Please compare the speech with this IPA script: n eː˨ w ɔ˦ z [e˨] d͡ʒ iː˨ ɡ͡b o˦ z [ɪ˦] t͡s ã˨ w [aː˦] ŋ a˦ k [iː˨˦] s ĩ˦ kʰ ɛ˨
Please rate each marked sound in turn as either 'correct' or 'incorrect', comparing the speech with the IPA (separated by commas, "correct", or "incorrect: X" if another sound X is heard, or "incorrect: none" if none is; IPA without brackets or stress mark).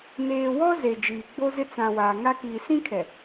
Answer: correct, correct, incorrect: aː˨, incorrect: iː˨